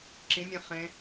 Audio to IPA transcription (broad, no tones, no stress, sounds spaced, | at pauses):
ǁ ĩ mʲ ẽ χ ẽ